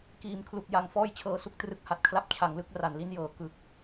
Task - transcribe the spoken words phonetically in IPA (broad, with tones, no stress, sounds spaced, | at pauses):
k iː˩˦ m kʰ l u˨˩ k̚ j a˨˩ ŋ f ɔː˥˩ j t͡ɕʰ ɤː˧ s u˦˥ k̚ t r ɯ˦˥ k̚ h a˨˩ t̚ kʰ l a˦˥ p̚ t͡ɕʰ a˩˦ ŋ l ɯ˦˥ k̚ r a˨˩ n l i˦˥ n j ɤː˩˦ k ɯ˨˩ k̚